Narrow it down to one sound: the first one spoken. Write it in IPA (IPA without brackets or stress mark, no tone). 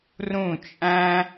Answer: r